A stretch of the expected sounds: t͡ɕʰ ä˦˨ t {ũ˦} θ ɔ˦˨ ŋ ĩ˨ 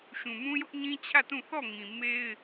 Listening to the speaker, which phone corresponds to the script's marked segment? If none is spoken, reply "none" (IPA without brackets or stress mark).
ũ˦˨